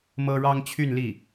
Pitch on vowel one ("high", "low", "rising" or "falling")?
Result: high